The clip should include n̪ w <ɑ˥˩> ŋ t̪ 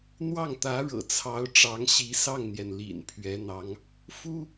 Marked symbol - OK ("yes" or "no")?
yes